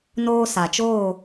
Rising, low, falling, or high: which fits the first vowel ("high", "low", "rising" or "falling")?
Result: high